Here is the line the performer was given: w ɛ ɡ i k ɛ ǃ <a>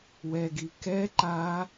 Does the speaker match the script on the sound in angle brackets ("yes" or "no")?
yes